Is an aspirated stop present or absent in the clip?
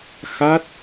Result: absent